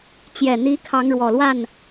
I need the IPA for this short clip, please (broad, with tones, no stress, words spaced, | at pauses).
t͡ɕjɛ˨˩ n̪i˨˦ kʰɑ˨˦ŋ ɻwɔ˨˩lwa˥˨n